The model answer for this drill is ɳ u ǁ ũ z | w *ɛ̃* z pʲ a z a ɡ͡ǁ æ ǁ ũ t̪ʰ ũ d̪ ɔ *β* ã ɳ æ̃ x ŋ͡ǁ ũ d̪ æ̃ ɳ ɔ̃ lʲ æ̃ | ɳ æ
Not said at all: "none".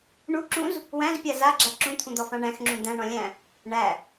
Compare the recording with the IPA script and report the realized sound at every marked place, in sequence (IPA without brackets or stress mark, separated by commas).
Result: æ̃, f